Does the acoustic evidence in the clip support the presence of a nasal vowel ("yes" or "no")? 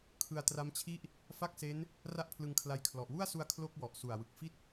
no